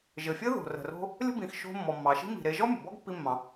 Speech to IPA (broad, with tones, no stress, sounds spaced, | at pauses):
ʒ ɘ˩ fʲ ɘ˥ ð o̤˩ r ə̤˩ r o̤˧ | lʲ ə̤˥ b ĩ˩ x ʃ o̤˧ mː ɔ˩ mː ɑ˩ ʃ i̤˥ m i̤˩ ɾ e˧ ʒ ɔ˥ mʲ ə̤˩ b ɔ˥ ɡ pː i˧ mː ɑ̃˩